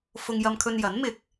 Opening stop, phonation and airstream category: aspirated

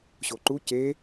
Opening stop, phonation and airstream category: click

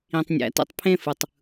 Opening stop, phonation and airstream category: plain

